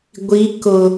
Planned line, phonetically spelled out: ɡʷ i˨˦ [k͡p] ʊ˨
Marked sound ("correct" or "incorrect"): incorrect